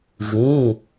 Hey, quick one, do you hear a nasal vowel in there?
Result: yes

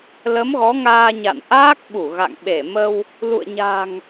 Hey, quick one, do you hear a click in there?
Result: no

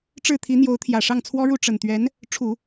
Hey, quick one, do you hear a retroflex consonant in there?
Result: yes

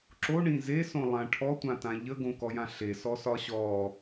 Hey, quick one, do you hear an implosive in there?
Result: no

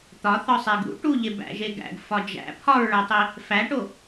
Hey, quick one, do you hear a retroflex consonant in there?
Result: yes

